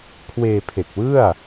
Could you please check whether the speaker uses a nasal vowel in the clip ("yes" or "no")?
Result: no